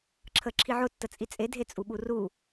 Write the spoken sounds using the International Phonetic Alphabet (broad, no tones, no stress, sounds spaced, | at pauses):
ǁʰ ə ǁʰ i ʕ ʊ tː ə t͡sʼ i t͡sʼ e dʱ e t͡sʼ u ɓ u r u